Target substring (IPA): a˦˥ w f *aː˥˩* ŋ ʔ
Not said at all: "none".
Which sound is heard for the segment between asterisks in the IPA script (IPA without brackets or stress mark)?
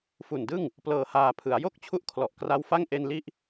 a˥˩